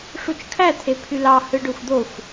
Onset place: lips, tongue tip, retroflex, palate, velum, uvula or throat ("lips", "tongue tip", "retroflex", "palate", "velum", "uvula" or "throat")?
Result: retroflex